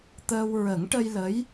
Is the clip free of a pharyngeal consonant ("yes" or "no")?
yes